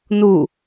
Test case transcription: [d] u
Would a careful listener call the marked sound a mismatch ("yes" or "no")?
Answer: yes